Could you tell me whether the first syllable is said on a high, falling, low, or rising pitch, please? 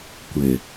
low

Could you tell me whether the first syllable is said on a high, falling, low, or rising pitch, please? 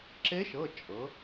rising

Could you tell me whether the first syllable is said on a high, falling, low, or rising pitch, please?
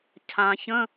low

